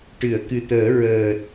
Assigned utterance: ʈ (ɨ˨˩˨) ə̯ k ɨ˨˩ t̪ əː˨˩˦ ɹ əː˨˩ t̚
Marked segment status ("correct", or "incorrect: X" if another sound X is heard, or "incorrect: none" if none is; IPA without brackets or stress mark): correct